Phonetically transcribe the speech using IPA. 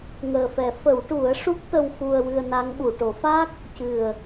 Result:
ŋəː˨˩fɛ˨˩˦ fə˨˩˦wʈu˨˩˦ə̯ʂu˦˥k̚ t̪ə˧wxu˧ə̯wɨ˧ə̯na˧˥ŋ ɓu˨˩˨ʈo˨˩˦fa˦˥k̚ | cɨ˨˩ə̯

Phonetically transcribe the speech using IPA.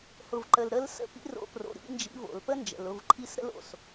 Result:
hʊ˩vǃə˩lɾə˧˥l sə̰˧˥ pḭ˥ro̰˧˥pro̰˩˧˩ ɾḭ˧˥nd͡ʒḭ˧˥vo̰˩l pə˥nd͡ʒə̰˩lʊ˩˧˩v ǃʰi˧˥s ɾə̰˥lo̰˩˧˩s

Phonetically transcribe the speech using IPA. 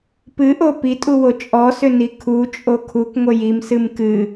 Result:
pɨʔo pitʼuwo t͡ʃʼɔsʏni kʰut͡ʃʼo kʰukŋʷə jimsɨm kɨ

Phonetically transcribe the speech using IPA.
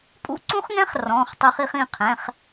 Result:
pʼṵ˦˥ǀũ˦˥χŋɛ̃˦˥χ rɔ̃˩˧˩χ tˤy˦˥χi˦˥χĩ˩˧˩ qʰɛ̃˩˧˩χ

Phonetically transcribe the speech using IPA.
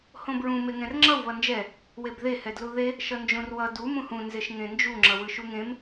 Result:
hõbɹũ meŋɛ̃rŋ͡ǁʌw βʌnd͡ʒɛ | webðe hɛdluðe | ʃʌnd͡ʒõrwʌ du mũhũ nzeʃŋẽnd͡ʒu ŋ͡ǁʌwɯʃuŋẽm

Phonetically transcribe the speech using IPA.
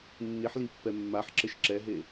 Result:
nːiħlipːɛ mːaħǁɘʃ ǁɛɦe

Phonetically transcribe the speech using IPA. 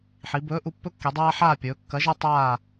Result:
ħi˩˧bɵː˨˥ ʔu˩˧pːɵ˦kːi˩˧dˤaː˦ ħaː˦˨pʲɵː˩˧kːɐ˨˥ ʒɐ˦tˤaː˦˨

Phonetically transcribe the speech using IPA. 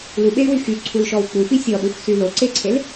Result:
luɓey̯wy xyǀʰulʃɔw k͡pufi sʲɔɗuxsy loǀeǀʰel

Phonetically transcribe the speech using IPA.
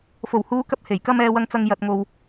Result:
fo˨˩whuː˨˧ kɐ˧p̚ he˨˩j kɐ˧m ɛː˧wɐ˧ŋt͡sɐ˧ŋ jɐ˨t̚ŋo˨w

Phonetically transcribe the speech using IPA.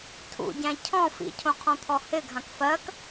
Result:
tʰṵɟæ̃ cʰɔ̃ fḭcʰõqʰɔ̃t̪ʰɔ hɪɡʱãk fɜk

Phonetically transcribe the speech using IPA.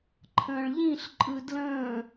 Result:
ǃʰə̃ːɭʎĩɬǃʼɯ dlə̃ː

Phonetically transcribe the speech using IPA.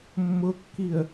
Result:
mːʊkːiə̯

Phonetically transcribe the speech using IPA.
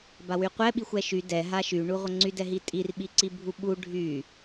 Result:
bawyqʷɛɓixʷ ɛʃy dɛ ɦaʃyɳu ʁʷəŋ͡ǀydɛɦi tʼirɓiǀi bʱuɓu ɖʱy

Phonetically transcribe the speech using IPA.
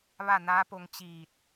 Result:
ʋa˥˨naː˧˥po˧ŋ t͡ɕiː˧˩t̚

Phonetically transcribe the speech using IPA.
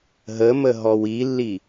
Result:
ɦəmə ɦɔwilːi

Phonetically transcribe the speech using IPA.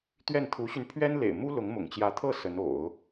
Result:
t̪ɥɛ˥˩nt̪ʰu˧˥ɕy˧n pʰɥɛ˥nlḛ˨˩ɪ̯ mu˥ lʊ˧˥ŋmʊ̰˨˩ŋt͡ɕjä˧˥t̪ʰɤ˥˩ sə˧˥n o̰˨˩˦ʊ̯

